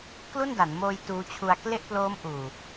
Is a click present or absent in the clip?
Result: absent